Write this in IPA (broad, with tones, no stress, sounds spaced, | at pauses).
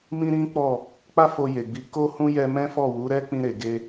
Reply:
m ĩ˦ ɾ ĩ˦ k͡p ɔ˦˨ | k͡p a˦ f o˧ j e˨ ɡ͡b i˨˦ k o˦ h ũ˦ j ɛ˦ m ɛ̃˦ f ɔ˦˨ w u˨˦ ɾ ɛ˦ k͡p ĩ˧ ɾ e˨ ɡ e˧